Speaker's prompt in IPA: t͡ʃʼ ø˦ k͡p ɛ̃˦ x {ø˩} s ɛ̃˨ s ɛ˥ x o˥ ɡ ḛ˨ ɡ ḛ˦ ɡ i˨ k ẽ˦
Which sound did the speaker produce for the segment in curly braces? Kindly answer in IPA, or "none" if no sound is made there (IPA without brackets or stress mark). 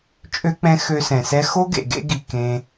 ø˦